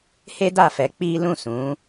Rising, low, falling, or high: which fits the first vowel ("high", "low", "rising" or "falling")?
high